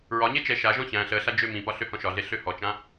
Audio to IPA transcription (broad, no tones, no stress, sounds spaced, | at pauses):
ɹ ɒ ɲ e t͡ʃ ɛ ʃ a ʒ ɔ̃ ç æ̃ ɬ əː ɬ a d͡ʒ ø m ĩ p ɒ ɬ ø h ɔ̃ ʃ ɒ ɮ e ɬ ø h ɔ t͡ʃ ã